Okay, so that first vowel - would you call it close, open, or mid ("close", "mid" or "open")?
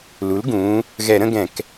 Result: close